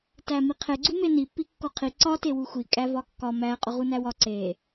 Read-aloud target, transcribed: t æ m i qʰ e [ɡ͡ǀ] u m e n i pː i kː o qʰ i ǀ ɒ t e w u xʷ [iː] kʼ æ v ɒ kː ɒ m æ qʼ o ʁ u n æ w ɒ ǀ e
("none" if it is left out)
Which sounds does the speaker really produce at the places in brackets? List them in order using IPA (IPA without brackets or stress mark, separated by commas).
ɡ͡ǀ, i